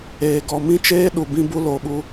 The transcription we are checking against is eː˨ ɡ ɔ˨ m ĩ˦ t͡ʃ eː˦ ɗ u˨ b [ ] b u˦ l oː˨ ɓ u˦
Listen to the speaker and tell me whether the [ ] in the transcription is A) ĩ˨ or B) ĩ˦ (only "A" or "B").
B